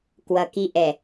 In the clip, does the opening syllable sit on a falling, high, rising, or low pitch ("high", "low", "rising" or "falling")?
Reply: low